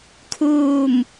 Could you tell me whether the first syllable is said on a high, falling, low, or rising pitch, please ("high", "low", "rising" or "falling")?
falling